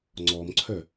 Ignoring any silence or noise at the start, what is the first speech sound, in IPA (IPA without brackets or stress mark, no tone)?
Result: ŋ͡ǀ